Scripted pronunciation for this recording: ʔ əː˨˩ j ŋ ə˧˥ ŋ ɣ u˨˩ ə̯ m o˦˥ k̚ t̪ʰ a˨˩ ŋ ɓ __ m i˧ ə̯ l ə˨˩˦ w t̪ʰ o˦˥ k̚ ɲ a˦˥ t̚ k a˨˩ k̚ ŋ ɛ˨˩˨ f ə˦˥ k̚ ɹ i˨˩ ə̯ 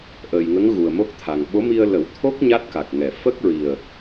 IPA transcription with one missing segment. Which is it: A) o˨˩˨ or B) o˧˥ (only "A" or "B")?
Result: B